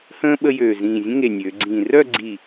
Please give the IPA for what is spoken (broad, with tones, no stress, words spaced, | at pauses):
hə̃ː˥ ɓə˥jøː˧˩ zĩː˧˩zʲə̃˥ ŋe˧˩nʲøː˩˧ɡ͡ǀĩː˧˩ rœ˥˧ɡ͡ǀi˧˩